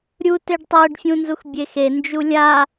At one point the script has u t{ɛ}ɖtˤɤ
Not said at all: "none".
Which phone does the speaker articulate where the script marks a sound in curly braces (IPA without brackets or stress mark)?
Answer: e